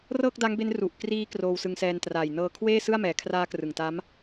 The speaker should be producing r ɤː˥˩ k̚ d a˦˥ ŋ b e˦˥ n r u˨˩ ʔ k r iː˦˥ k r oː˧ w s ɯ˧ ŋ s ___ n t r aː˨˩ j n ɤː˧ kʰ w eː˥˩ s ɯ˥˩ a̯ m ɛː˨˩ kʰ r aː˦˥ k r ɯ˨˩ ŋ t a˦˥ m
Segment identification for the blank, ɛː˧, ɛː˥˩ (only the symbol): ɛː˧